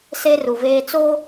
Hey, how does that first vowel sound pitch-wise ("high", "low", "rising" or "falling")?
high